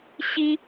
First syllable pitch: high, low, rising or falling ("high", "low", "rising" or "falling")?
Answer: high